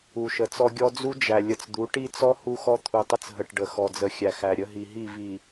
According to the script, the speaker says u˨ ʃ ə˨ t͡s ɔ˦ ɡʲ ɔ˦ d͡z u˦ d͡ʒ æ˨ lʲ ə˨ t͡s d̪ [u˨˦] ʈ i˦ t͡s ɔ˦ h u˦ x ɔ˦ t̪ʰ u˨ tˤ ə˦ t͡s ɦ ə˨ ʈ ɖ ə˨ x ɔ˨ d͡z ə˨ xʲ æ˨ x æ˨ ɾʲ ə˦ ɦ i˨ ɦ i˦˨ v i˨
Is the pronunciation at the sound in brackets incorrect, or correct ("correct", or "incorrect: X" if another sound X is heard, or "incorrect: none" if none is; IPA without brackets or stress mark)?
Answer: correct